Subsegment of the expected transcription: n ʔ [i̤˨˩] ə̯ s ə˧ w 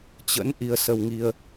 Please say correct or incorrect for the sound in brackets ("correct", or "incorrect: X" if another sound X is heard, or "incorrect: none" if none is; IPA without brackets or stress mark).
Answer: incorrect: i˧